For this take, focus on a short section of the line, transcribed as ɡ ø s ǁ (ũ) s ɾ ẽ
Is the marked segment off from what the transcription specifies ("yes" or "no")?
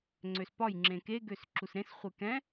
yes